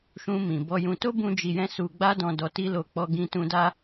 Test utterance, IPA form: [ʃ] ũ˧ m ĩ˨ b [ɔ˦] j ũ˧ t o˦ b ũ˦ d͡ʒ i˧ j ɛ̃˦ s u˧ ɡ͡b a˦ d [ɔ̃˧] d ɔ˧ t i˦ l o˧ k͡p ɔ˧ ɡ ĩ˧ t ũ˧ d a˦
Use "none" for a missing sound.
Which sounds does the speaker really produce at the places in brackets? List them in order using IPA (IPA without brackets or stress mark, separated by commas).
ʃ, ɔ˧, ɔ̃˧